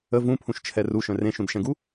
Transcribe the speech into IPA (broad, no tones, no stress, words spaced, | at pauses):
ə vũpʰũʃt͡ʃʰɛ ruʃœ̃ rẽʃũdʃɛ̃ɡu